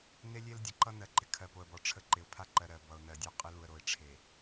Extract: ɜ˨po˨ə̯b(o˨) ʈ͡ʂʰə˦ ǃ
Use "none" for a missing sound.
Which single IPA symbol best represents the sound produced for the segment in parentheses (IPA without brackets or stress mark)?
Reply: ɔ˨